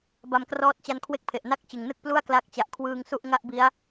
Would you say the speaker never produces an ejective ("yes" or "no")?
yes